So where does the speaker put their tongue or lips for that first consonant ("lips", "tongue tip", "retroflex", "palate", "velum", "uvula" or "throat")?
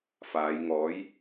lips